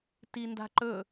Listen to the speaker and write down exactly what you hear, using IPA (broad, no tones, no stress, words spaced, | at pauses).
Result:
tinda̤ǃɵ